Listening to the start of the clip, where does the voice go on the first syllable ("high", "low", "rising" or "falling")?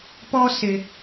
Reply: high